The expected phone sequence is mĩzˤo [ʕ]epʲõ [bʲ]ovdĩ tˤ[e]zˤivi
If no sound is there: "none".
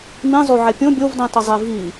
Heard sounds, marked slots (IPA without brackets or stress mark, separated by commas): ʕ, bʲ, ɘ